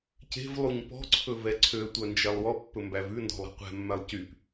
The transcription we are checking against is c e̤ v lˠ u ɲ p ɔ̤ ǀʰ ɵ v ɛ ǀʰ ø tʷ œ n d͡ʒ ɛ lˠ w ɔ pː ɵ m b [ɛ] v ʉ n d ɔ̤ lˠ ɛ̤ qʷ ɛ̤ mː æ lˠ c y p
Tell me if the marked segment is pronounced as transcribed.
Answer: no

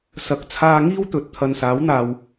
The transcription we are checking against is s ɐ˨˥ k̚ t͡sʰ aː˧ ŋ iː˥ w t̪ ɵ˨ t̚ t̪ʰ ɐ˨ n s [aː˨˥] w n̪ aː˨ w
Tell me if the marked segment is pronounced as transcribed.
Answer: yes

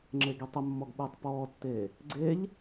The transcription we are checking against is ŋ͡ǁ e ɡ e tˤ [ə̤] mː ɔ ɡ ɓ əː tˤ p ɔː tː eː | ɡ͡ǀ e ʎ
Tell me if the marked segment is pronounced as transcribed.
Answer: no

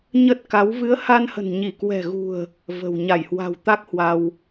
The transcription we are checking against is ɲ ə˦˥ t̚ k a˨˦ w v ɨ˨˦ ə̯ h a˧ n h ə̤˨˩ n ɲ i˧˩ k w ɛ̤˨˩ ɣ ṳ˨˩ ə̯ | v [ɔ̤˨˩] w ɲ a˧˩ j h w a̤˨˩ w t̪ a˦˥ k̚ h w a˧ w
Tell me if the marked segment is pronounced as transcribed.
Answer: no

